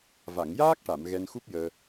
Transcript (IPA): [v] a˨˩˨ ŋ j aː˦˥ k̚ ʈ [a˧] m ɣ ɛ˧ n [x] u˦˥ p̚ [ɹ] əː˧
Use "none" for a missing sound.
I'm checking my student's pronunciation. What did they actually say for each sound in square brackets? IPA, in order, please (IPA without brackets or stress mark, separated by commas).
v, a˨˩˨, x, j